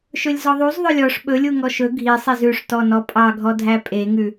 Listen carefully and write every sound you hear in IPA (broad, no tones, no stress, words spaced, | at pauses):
ʃɵlʲzɔðˤuz ðˤɵlʲɔʂ ɓɵlʲu ŋɔʃɵ ɡʱisˤiz ʉʂtɔnɔ pʼɑɡʱɔdʱæ pʼeŋʉ